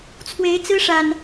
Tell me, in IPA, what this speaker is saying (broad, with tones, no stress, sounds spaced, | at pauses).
t͡sʰ w e˨˦ ɪ̯ t͡s ɹ̩˦ ʂ a˨˩ n